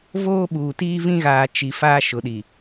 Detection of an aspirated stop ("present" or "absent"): absent